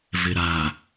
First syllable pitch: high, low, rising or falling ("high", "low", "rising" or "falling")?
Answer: low